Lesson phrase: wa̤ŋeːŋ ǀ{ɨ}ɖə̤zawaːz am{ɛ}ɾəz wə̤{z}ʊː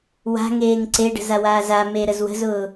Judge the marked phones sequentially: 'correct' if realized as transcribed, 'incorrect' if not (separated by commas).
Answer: incorrect, incorrect, correct